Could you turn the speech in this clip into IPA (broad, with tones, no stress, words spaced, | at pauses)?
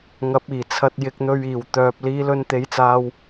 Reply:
ŋɐ˨˥p̚iː˨˩t͡sʰɐ˧t̚ jɪ˧k̚n̪ɵ˧ɥ iː˨˩w t̪œː˨p̚ liː˨˧lɵ˧nt̪e˨˧jt͡saː˧w